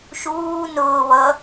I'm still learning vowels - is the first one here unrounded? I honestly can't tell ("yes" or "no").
no